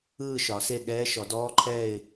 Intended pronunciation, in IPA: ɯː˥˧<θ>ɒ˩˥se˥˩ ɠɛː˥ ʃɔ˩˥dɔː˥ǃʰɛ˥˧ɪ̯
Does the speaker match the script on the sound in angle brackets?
no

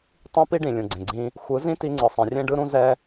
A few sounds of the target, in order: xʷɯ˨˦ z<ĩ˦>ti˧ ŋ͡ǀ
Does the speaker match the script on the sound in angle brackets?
yes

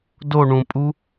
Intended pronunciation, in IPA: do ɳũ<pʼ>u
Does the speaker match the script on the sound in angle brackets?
yes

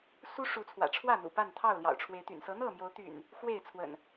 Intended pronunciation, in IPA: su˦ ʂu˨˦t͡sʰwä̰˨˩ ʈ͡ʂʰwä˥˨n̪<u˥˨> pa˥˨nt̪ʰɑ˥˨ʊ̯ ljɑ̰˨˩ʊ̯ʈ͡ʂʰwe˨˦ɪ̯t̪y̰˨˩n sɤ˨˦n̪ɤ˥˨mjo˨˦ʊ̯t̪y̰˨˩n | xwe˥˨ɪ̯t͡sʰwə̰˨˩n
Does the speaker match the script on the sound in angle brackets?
no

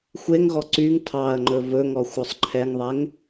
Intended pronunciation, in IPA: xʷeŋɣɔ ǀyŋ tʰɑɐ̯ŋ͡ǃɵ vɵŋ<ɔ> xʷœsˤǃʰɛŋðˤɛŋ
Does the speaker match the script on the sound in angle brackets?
yes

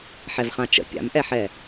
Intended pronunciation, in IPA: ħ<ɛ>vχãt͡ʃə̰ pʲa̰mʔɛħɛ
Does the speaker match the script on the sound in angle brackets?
yes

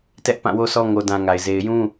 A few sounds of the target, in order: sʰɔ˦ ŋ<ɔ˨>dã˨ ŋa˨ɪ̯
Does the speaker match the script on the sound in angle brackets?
no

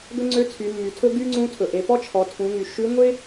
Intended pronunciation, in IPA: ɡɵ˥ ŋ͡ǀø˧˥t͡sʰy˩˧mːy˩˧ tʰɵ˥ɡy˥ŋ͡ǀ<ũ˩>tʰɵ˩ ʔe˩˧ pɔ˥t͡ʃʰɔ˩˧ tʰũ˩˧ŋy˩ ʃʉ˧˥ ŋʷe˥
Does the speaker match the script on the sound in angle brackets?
no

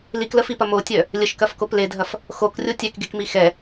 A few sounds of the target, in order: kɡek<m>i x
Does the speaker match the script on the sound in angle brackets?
yes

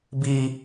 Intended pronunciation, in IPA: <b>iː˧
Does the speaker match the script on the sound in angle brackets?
yes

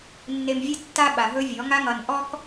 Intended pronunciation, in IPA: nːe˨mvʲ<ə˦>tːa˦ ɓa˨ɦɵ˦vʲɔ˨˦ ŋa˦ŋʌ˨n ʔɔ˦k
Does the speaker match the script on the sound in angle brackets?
yes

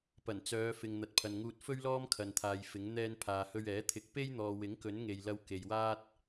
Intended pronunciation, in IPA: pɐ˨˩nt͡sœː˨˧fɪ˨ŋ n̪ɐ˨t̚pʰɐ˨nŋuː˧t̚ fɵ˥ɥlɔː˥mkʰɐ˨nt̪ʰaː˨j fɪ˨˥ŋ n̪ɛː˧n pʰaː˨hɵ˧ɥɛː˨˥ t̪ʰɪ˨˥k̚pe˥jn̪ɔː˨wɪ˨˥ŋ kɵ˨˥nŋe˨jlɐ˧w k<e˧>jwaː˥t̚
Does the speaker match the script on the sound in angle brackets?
no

